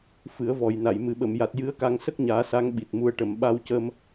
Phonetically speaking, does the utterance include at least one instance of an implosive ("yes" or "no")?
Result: yes